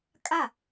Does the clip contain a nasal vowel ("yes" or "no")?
no